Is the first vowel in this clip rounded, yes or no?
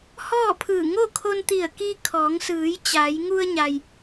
yes